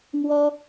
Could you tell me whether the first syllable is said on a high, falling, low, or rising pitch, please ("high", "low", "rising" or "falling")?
high